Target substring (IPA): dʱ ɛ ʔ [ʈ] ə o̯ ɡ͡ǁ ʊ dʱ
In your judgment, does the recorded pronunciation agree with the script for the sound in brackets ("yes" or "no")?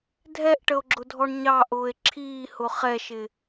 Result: yes